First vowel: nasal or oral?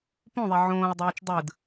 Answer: nasal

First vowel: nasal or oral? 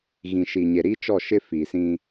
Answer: nasal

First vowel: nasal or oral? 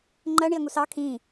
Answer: oral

